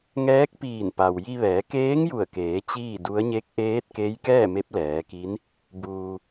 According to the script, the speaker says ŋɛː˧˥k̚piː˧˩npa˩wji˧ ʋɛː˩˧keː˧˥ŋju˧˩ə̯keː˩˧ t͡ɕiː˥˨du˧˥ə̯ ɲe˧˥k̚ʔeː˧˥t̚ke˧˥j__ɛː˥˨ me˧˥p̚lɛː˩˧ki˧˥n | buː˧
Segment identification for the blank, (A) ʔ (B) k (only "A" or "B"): B